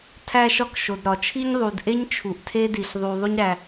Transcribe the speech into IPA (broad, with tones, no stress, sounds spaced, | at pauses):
tʰ æ˥ ʃ ɒ˥ k ʃ o˩ d ɾ ɒ˩ t͡ʃʰ i˥ ɲ ðˤ u˩ d ʔ e˥ ɲ t͡ʃʰ u˩ ʔ tʰ e˥ d i˩ ɬ ðˤ u˩ ðˤ u˥ ɲ ɾ æ˩